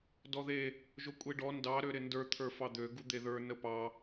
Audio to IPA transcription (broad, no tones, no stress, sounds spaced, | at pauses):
d ɔ ð e | ʒ o kʷʼ e ɖ ɔ n d ɑ ɾ ø ɾ ɪ n d ə˞ t̪ʰ ə˞ f ɑ d̪ ø ɡ u d̪ e ð ə˞ n ə p ɑ